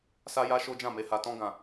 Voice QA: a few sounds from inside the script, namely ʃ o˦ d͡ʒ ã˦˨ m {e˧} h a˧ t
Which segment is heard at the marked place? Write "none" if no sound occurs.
e˧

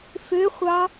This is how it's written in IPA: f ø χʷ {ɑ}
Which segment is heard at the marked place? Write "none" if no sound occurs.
ɑ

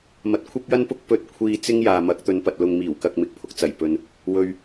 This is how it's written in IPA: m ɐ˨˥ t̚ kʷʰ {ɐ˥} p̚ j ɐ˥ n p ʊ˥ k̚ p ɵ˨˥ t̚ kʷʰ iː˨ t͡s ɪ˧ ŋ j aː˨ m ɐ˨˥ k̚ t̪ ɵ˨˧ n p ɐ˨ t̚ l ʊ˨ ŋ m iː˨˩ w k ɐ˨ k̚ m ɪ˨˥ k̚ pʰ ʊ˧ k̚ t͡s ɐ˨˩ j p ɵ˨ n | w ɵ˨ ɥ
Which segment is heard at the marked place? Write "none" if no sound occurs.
ɐ˥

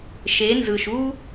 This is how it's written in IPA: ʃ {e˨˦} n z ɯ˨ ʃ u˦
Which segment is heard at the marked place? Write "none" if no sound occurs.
e˨˦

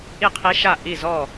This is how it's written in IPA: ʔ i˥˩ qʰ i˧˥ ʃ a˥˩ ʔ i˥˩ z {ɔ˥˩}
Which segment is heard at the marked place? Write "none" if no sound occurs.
ɔ˥˩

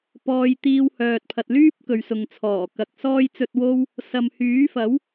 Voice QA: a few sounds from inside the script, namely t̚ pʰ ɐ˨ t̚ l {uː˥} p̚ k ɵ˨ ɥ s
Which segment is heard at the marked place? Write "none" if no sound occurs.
yː˥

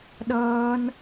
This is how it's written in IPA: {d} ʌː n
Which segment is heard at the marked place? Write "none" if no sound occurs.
ɗ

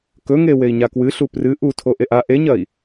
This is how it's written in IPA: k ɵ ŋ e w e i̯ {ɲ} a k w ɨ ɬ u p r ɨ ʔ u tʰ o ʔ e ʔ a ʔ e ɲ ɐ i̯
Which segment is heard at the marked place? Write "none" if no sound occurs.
ɲ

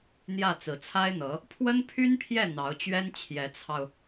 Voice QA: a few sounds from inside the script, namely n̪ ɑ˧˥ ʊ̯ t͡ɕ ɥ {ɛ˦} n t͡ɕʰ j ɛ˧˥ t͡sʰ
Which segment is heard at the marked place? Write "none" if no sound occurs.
ɛ˥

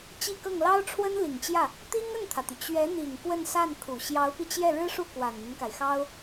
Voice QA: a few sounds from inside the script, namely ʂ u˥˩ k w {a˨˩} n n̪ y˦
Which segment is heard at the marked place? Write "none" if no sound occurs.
a˨˩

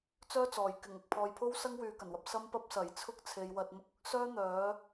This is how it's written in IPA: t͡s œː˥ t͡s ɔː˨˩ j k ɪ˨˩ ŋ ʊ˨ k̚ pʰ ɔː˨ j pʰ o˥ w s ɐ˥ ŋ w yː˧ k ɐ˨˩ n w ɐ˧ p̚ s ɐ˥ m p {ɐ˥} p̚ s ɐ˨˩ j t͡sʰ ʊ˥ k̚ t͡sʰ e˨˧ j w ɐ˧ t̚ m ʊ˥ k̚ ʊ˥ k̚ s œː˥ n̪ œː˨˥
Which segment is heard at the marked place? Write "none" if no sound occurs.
ɐ˥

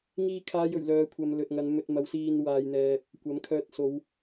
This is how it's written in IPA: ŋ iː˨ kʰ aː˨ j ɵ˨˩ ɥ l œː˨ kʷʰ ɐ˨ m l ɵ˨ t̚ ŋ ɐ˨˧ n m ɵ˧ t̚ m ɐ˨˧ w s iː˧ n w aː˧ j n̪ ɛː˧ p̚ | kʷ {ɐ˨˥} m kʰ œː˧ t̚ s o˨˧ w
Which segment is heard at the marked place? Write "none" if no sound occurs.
ɐ˨˥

